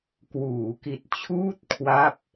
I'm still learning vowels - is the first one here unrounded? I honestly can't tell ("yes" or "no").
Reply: no